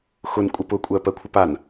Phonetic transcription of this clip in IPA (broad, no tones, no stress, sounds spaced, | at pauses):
x ʊ n kʷʼ ə p ʊ kʷʼ ɜ p ɜ kʷʰ ə p a n